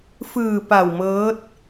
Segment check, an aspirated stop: absent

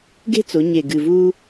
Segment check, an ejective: absent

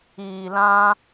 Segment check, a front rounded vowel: absent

